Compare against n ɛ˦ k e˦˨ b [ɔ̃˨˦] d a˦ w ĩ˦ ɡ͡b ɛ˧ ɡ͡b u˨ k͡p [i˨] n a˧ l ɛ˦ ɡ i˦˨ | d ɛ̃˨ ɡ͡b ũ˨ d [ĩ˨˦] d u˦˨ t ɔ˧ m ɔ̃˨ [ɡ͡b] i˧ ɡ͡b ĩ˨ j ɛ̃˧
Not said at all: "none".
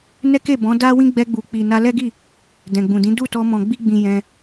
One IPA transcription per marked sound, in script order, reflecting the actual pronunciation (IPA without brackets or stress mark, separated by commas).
ɔ̃˨˦, i˨, ĩ˨˦, ɡ͡b